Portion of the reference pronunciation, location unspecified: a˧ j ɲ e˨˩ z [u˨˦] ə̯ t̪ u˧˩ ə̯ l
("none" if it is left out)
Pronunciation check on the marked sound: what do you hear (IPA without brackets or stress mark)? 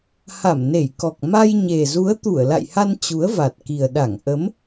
u˨˦